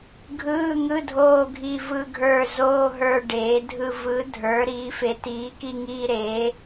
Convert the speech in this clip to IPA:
ɡʱ ɯː˧˥˧ ŋ ɯ˧˥˧ dʱ oː˦˨ ɡʱ i˦˨ v ɯ˦˨ ɡʱ ə˞˦˨ z oː˧˥˧ ɦ ə˞˦˨ ɖ eː˩˥ dʱ ɯ˦˨ v ɯ˩˥ dʱ ə˞˩˥ ɾ iː˩˥ f e˩˥ t iː˩˥ k i˦˨ ŋ iː˦˨ ɾ eː˩˥

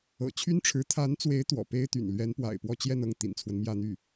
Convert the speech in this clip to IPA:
ɤ̰˨˩ t͡ɕʰ y˥ n ʈ͡ʂʰ ɻ̩˧˥ t̪ʰ a˧˥ n t͡s w e˧˥ ɪ̯ t̪ w ɔ̰˨˩ p e˥ ɪ̯ t̪ y̰˨˩ n l ɥ ɛ˧˥ n p w a̰˨˩ ɪ̯ p w ɔ˥˧ t͡ɕ j ɛ˥˧ n ɤ˥˩ ŋ t̪ ḭ˨˩ n t͡sʰ w ə˦ n m j ä˥˧ n̪ y˥˩

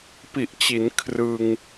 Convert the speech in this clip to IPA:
p i˨˩ ʔ t͡ɕ i˩˦ n kʰ r ɯ˧ ŋ

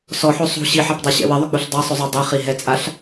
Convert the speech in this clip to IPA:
s ɔ ħ o sˤ ṳ ɕ i ħ a p dˤ ɛ ɕ ɛ̰ w ɪ ðˤ ʏ k͡p u ɬ dˤ a sˤ ɵ zˤ o dˤ i χ i ɦ ɛ t͡sʼ a ɬ

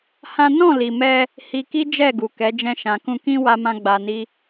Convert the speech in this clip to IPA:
h ã˦ n ɔ̃˦˨ l i˨ m ɛ˧ | h i˧ k i˦ d͡ʒ ɛ˦˨ ɡ u˨ k ɛ˨˦ d͡ʒ ɛ̃˧ ʃ ã˨ k ũ˧ k ĩ˦ w a˦ m ã˦ ɡ͡b a˧ n i˦

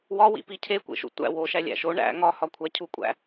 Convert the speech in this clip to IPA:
w ɒ w ḭ p i cʰ e kʷ ḛ ʃ ṵ tʷ æ̰ w o ʃ æ lʲ æ̰ ʃ o ɳ æ̰ ŋ ɒ h ɒ kʷʰ æ cʰ u kʷʼ æ̰

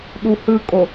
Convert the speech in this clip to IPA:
ɗ u h ɯ kʼ o

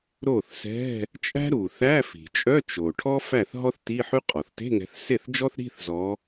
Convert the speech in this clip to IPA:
ɾ o˥˩ θ s ɛ̤˧˥˧ | t͡ʃʼ æ̤˥ ɾ u˩ θ æ˧˥˧ f i̤˩ t͡ʃʼ œ˧˥˧ t͡ʃ o˩ ʈʰ ɔ˥ f æ˥˩ θ ɦ ɔ˥ θ t i˧˥˧ ħ y˥ qʼ ɔ˩ θ t e̤˧˥˧ ŋ ɛ̤˨˦ θ s e˥˩ θ d͡ʒ ɔ˥ θ ɾ i̤˧˥˧ θ z ɔ˨˦

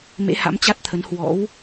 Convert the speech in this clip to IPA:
m ḛ˧˥ h a̰˧˥ m t͡ɕ a˦˥ t̚ t̪ʰ ə˨˦ n h w ɔ̰˧˥ w

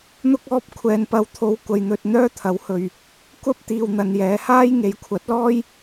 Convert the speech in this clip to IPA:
n̪ ʊ˥ k̚ ɔː˥ p̚ kʷʰ ɛː˨ n p ɐ˨˧ w t̪ʰ o˨ w kʷ ɐ˨ j n̪ ɵ˨ t̚ n̪ œː˥ t̪ʰ ɐ˨˥ w h ɵ˨ ɥ | kʷ ɐ˥ p̚ t̪ iː˨ w n̪ ɐ˨ n j ɛː˨˧ h aː˥ j ŋ e˨˧ j kʷʰ ɐ˨˥ t̚ l ɔː˥ j

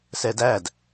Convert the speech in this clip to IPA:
s ɛ d æ d

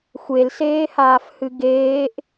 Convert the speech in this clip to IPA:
xʷ e l s eː h aː f h ɨ ɡ eː ʔ

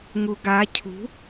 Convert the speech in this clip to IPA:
ŋ u ɡ a cʰ ṳ

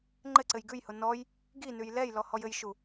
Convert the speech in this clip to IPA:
ŋ͡ǃ ɘ ǀ ɘ j ɡ ʉ j h ʊ n ɔ j | ɡ i n ʉ j l ɛ j l ɔ h ɔ j ɘ j ʃ u

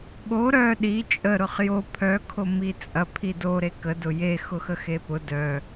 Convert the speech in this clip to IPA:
ɠ o ɾ œ ɗ i t͡ʃʼ ə ɾ ʊ χ j o pʰ œ kʰ o m i t͡sʼ ɐ pʰ i d o ɾ e k ə d ʊ j e x ʊ x ə x e p ʊ d œ

